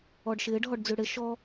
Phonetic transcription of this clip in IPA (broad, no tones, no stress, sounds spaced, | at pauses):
ɔ ɖ ʃ ɪː ɖ ɦ ɔ ɖ d͡z ʉ ɽ ɪ ʃ ɔ